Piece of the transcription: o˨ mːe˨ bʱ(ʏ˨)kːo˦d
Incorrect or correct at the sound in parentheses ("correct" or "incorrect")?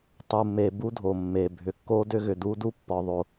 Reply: correct